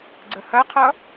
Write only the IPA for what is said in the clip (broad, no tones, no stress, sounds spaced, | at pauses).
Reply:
ɡ͡ǀ ə h ɐ qʰ ʌ